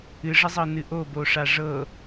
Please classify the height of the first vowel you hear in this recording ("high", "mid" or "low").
high